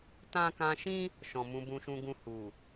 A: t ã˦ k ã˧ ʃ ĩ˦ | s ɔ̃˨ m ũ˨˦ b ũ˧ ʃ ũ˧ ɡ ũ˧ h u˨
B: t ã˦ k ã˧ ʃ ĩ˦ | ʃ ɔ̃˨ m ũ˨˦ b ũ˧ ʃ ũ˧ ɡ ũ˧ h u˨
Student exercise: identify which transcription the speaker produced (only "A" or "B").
B